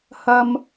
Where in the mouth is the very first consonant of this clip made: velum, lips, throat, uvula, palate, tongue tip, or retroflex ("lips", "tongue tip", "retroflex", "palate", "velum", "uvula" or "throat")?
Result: throat